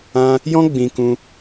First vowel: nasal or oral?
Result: nasal